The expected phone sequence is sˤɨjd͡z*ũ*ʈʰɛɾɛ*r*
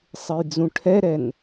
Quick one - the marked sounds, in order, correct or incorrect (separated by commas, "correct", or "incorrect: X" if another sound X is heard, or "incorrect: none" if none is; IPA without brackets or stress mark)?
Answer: correct, incorrect: n